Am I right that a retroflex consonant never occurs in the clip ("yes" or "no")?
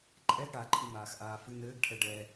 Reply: no